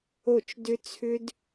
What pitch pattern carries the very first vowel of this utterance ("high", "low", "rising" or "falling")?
falling